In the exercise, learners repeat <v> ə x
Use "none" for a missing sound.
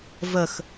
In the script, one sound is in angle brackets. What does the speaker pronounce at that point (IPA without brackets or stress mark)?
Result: v